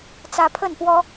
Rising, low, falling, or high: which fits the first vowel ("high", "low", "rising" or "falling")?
rising